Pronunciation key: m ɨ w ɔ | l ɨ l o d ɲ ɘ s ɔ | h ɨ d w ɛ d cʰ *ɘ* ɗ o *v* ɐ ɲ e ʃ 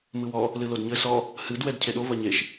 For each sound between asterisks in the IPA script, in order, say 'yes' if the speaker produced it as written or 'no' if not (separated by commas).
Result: no, yes